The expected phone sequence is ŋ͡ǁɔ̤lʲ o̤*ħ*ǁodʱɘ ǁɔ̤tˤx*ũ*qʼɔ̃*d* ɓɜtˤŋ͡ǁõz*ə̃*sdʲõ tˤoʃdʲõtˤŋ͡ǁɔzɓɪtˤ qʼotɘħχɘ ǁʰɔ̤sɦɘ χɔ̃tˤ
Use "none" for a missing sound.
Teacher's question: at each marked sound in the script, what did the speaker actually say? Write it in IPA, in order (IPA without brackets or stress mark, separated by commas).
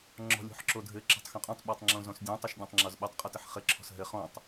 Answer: ħ, õ, tˤ, ɔ̃